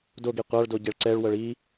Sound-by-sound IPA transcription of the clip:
d o ɡ i qʷ a ɭ d o ɟ e ɭ ǀ ɛ ɭ w ɤ ɭ i

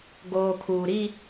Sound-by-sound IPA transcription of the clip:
ɡ oː˨ kʰ uː˨ ɾ i˦

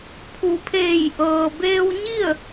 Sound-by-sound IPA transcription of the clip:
pʰ u˩˧ pʰ eː˧˩ j ʔ ɤː˩ b eː˧ w ɲ i˥˨ ə̯

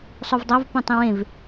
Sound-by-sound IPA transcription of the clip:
sˤ u v dˤ ɑ v p õ tˤ ĩ w ẽ v

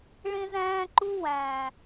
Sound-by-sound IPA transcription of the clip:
ɭ ẽ˦ z æ̃ː˦ ǃ u˦ w æ̃˨

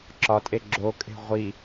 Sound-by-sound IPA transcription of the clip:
ǁ ɒ tʼ e ɡ͡ǁ o kʼ e̤ ʁʷ i

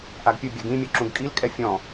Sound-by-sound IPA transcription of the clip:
ʔ a ɡ pʲ ɯ bʲ a ɡ ĩ mʲ o ǁ ũ ɡ kʼ i l kʼ ɛ fʲ ɔ̃

